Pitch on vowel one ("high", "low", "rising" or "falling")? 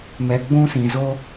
low